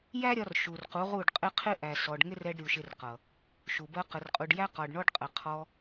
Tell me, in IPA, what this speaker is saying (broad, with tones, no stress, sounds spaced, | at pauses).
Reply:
j æ˦ ɾʲ ɒ˧ r ʃ u˨ r q u˨˦ ʁ u˦˨ ɖ qʼ ɪ˦ qʰ ɪ˦ ʔ æ˨ s ɔ˨ ɖ ŋ ɪ˦ r ɛ˧ ɖ ɾʲ u˨ ʃ ɪ˧ r q ʌ˨ | ʃ u˨ b ɜ˧ q ə˨ r qʼ u˨ ɖ j æ˦ q ɒ˨ ɖ ɳ ɔ˧ ɖ qʼ ə˧ qʰ ɔ˧